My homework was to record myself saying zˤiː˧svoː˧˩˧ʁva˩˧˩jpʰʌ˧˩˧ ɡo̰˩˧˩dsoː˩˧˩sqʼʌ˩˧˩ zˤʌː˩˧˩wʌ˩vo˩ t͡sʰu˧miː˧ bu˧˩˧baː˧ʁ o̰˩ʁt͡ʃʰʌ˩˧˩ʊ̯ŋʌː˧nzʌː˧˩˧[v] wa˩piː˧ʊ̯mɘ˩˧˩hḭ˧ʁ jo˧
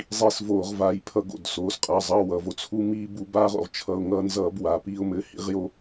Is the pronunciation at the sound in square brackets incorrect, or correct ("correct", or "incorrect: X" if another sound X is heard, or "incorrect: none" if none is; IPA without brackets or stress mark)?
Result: incorrect: b